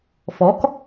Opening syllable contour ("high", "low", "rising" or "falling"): rising